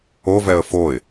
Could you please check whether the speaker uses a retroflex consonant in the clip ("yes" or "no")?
no